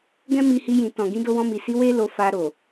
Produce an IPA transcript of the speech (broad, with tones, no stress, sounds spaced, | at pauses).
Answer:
ɡ ɛ̃˦ m i˧ h i˧ j ĩ˨ t ɔ̃˨ ɡ ĩ˧ d o˧ w ɔ̃˧ m i˨ s i˧ w e˦ l o˧ f a˧ ɾ o˨